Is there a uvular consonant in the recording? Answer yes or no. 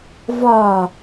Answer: no